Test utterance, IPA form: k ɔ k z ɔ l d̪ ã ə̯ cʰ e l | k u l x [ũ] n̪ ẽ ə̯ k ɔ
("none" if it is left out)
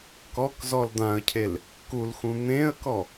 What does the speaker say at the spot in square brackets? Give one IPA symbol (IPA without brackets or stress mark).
ũ